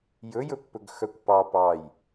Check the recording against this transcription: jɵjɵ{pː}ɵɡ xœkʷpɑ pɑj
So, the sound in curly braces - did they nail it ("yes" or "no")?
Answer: yes